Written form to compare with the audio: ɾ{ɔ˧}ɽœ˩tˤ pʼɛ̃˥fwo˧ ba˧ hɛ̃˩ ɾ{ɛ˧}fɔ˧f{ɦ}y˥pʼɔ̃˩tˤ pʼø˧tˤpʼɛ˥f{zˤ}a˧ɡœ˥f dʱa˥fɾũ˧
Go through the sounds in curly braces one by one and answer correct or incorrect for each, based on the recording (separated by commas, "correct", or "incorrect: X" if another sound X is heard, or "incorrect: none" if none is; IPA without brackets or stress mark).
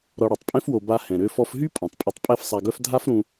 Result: correct, incorrect: ø˧, correct, incorrect: sˤ